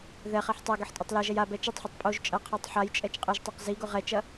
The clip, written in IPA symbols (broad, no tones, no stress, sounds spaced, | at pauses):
ð ɛ χ ɛ ħ tˤ a ɡ ɘ ħ tʼ ɐ tˤ l ɛ ʒ ɛ j a b ɛ t͡ʃ ɐ tˤ ħ ɘ tˤ pʼ o ʒ t͡ʃʼ ɐ qʰ a tˤ ħ a j t͡ʃʼ ɛ t͡ʃ qʼ ɘ ʒ tˤ o q z i ɡ o ʁ ɛ t͡ʃ ɐ